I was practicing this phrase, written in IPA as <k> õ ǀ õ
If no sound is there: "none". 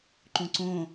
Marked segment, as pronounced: ǃ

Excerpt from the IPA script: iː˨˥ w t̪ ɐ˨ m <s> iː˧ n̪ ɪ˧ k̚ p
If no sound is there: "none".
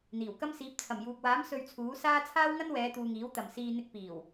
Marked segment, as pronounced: s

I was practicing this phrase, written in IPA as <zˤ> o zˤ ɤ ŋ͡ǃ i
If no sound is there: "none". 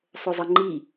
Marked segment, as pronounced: sˤ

